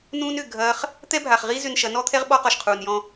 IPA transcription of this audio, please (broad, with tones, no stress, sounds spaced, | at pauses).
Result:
n ũː˦ n ʏ˦˨ ɡʱ ɐː˦ χ | t̪ ɛ˦ bʱ a˨ χ ʁ i˦ z ʏ˧ n ʃ ɐ˨˦ n ɔ˦ t̪ʰ ɛ˦ ʁ ɓ ɔ˦ q ɔ˨ ʃ qʰ uː˨ n j ɔ̃˦